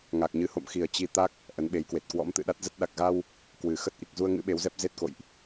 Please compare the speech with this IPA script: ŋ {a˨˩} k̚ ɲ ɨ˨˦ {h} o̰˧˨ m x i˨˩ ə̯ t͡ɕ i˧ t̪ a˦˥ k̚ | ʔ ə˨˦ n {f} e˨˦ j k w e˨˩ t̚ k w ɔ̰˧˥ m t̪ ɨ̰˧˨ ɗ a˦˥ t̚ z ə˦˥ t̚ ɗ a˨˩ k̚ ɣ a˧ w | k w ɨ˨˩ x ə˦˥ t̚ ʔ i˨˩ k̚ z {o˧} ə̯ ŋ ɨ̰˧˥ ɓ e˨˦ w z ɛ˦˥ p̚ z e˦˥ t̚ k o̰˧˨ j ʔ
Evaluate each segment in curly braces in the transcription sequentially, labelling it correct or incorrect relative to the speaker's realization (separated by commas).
correct, correct, incorrect, incorrect